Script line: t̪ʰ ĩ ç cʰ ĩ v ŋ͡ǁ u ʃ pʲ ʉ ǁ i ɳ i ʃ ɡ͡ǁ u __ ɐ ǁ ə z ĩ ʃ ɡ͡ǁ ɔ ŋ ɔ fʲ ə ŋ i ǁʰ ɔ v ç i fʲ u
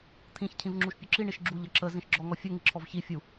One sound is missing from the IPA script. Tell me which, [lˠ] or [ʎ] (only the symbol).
ʎ